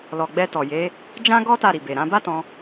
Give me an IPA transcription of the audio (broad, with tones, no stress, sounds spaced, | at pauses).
l ɔ˨ ɡ͡b ɛ˧ t ɔ˨ j e˨˦ | d͡ʒ ã˦ ɡ ɔ˦ t a˦˨ ɾ i˨ b e˨ ɾ ã˨˦ b a˦ t ɔ̃˧